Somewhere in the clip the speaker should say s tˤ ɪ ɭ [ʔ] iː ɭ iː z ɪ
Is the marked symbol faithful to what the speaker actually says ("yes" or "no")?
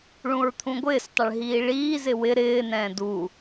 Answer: no